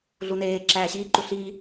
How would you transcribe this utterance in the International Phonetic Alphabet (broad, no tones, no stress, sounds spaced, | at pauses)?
ɮ u n eː ǁ æː ɕ iː ǃ u ɬ iː